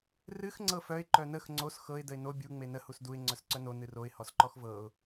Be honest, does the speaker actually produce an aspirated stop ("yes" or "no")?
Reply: no